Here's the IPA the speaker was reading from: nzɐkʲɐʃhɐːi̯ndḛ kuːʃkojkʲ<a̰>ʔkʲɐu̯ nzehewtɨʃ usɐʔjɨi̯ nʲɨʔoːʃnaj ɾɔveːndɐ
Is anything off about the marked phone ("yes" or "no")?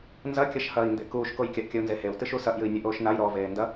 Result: yes